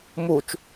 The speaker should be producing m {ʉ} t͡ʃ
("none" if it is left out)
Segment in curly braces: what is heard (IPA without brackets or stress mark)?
u